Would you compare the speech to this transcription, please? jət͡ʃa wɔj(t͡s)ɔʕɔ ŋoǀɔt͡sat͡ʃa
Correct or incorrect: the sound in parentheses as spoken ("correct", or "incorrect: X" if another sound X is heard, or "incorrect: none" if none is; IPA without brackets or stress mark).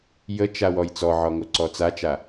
correct